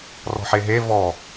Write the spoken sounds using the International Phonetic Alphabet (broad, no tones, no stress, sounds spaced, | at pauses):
r ɔ̤ ħ e ɦ e v ɔ